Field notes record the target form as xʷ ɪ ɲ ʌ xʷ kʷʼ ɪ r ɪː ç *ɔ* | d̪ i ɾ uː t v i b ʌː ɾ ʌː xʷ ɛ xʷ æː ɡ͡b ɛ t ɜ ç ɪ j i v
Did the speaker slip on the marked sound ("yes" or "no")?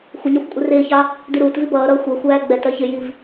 yes